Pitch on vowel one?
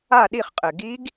falling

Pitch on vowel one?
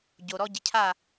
low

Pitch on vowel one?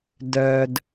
low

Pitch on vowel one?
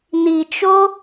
low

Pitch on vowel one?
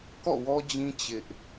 falling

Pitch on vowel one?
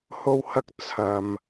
high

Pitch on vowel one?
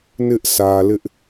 high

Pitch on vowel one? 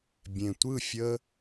low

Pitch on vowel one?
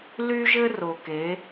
high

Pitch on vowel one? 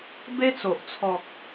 high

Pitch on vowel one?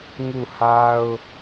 falling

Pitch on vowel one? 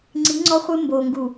rising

